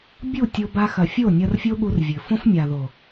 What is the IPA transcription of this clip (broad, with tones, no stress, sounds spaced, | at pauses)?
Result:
bʲ u˦˨ tʲ o˧ b a˧ x ɐ˨ fʲ o˦˨ nʲ ɐ˧ r fʲ o˦ ɠ u˧ r vʲ ɘ˨ f õ˦ f mʲ a˨ ð o˨